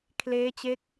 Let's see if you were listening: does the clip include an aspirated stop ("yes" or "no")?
yes